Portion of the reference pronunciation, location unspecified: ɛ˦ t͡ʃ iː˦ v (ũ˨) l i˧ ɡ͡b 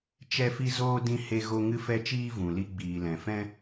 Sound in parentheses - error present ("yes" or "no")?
no